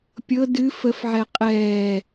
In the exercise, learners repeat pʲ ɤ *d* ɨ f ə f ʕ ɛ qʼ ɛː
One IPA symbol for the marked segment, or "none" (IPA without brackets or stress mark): d